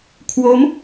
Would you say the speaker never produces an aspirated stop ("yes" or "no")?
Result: no